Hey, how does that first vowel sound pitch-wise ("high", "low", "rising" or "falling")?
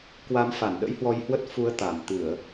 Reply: rising